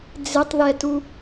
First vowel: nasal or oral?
oral